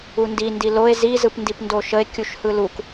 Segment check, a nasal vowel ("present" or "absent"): absent